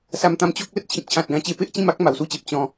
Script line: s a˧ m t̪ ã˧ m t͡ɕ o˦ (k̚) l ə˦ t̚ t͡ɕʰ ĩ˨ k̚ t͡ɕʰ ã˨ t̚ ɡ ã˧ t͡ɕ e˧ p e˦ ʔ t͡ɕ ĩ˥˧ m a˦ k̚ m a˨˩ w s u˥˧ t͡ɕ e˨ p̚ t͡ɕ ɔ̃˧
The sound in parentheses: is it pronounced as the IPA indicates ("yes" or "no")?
yes